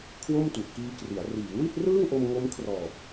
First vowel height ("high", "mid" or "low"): mid